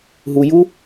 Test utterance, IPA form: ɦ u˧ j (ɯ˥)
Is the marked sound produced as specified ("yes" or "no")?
no